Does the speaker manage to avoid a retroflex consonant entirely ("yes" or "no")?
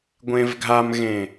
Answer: yes